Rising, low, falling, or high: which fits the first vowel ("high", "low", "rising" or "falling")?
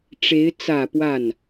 rising